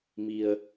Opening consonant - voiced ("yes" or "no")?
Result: yes